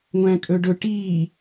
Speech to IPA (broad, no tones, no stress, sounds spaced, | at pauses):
ŋʷ æ̃ kʼ ɵ ɖ ɵ ʈ iː